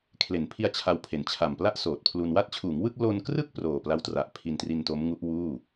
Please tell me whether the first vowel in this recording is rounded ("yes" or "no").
no